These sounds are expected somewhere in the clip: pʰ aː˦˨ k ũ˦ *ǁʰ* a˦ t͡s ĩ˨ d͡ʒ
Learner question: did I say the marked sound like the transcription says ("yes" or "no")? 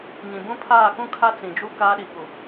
no